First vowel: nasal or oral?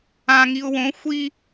nasal